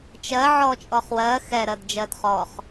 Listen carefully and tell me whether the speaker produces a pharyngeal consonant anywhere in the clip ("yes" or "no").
yes